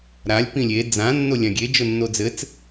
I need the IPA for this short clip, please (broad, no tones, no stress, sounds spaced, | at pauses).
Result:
ɾ a lʲ p ĩ lʲ e d͡z ã nː o lʲ ã ɡʲ e d͡ʒ o nː o d͡z ɘ t͡s